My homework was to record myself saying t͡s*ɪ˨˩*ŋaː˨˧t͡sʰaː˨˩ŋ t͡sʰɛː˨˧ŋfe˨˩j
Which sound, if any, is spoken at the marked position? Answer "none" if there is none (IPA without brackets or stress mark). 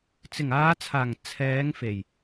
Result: ɪ˨˩